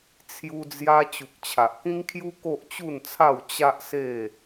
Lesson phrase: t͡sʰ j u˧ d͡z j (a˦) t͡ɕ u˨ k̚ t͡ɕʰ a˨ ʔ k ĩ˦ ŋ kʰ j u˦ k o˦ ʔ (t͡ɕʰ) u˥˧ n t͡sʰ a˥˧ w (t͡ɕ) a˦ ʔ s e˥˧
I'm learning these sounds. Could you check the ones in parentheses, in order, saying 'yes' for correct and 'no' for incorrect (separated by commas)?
no, no, yes